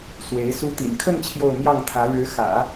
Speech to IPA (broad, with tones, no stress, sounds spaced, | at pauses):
s w e˧˥ ɪ̯ s u˧˥ t̪ ḭ˨˩ n kʰ ə˥˧ n t͡ɕʰ j o˥˧ ʊ̯ m j ɑ˥˩ ŋ t̪ʰ ä˧˥ ɻ ɻ̩˧˥ x ä̰˨˩˦